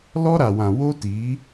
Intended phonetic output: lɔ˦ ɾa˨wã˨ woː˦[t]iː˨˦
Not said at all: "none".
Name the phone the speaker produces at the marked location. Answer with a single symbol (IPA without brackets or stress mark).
t